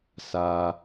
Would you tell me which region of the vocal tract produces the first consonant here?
tongue tip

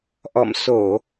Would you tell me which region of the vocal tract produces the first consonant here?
throat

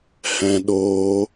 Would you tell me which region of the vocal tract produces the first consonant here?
throat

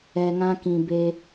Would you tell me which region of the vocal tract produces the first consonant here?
velum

